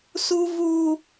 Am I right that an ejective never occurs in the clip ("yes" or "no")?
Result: yes